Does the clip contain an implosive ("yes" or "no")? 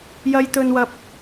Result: no